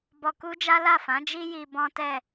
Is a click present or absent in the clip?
absent